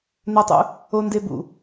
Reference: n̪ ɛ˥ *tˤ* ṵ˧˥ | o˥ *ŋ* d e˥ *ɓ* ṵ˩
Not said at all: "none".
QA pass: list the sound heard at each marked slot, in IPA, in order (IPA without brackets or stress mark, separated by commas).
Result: tˤ, n, b